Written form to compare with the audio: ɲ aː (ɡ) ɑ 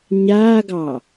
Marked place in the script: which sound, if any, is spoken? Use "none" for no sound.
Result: ɡ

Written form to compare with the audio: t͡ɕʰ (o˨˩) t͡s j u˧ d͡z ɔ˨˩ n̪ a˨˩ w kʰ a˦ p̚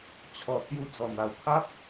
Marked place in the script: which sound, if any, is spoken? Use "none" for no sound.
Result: ɔ˨˩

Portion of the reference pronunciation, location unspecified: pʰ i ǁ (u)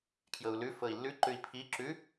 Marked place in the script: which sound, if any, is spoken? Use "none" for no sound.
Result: ʉ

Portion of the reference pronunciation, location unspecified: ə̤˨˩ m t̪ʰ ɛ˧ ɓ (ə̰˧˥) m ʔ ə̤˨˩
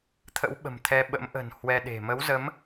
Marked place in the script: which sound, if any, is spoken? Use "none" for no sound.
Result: ə̰˧˥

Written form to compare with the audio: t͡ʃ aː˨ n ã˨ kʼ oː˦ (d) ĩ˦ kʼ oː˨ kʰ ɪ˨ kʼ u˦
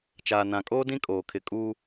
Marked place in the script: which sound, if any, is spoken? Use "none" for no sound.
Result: d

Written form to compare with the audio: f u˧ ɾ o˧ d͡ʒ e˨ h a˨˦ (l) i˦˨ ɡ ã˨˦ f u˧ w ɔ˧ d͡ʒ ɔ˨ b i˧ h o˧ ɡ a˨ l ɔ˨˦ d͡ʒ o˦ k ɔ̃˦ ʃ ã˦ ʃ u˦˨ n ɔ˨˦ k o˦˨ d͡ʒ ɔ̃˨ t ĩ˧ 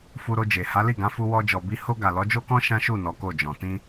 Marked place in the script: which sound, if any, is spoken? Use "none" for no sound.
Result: l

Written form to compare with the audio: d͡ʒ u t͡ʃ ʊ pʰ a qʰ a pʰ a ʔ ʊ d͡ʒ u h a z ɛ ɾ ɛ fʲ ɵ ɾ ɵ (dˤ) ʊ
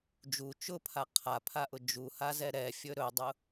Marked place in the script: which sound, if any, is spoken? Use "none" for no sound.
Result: dˤ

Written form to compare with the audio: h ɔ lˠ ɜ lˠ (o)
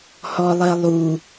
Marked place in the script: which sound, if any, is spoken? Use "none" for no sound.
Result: u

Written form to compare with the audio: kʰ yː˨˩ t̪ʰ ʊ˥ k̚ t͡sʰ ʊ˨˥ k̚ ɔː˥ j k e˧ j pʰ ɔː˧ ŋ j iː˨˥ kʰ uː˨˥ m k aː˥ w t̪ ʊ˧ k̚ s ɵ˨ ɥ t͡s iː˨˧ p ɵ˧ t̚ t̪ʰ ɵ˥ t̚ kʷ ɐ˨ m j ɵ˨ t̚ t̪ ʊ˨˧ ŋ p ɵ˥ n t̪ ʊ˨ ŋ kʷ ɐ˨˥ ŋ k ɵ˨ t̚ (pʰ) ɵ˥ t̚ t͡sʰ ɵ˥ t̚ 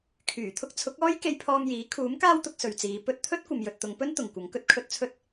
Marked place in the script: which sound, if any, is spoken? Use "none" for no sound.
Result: kʰ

